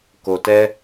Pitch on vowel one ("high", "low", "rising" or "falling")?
low